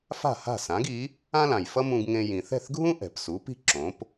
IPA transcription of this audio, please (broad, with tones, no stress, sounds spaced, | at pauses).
f a̤˥˩ h a̤˥˩ s ã˩˥ ɡ i˩˥ | ã˥ l ã˩ j f ʌ˥ m ũ˧ ɡ ŋ ẽ˧ j ĩ˩ θ ɛ̤˥˩ θ ɡʱ ũ˥ ʔ ɛ̤˩ p s u˩˥ p i̤˥ ǁ õ˩˥ p